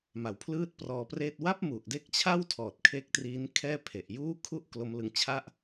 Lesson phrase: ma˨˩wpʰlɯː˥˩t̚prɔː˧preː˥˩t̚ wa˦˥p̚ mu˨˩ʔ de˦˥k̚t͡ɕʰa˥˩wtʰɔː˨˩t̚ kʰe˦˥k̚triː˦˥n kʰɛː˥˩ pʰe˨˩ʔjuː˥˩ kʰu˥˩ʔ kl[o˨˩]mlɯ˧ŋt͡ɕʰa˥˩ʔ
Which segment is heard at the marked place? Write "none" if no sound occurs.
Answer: o˦˥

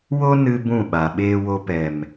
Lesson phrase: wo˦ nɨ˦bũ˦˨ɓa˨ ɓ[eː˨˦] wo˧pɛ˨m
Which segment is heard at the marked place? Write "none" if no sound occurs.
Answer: eː˦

